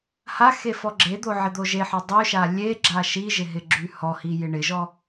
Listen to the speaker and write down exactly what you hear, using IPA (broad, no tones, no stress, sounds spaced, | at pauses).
h a x e f ɔ ɡ͡ǁ e d̪ o ʕ ɪ d̪ o ʒ e ħ ɔ dˤ y ʃ a lʲ e ɡ͡ǁ a ʃ i ʒ ɪ ɦ ɪ ɡ͡ǁ y h ɔ h i j ɪ ɳ ɪ ʒ ɔ